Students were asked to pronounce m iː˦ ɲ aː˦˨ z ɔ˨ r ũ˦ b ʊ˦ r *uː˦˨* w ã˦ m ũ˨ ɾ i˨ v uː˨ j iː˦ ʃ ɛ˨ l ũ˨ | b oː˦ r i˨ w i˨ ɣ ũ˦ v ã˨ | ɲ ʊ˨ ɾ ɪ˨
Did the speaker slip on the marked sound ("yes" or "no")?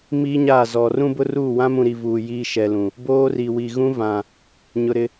no